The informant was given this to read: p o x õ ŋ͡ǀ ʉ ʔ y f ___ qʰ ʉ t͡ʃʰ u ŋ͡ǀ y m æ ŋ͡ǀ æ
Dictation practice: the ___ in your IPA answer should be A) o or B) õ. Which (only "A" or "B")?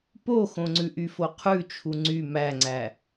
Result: A